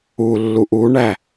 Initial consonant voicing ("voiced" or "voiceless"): voiced